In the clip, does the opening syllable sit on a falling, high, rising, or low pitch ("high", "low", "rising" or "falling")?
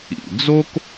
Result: low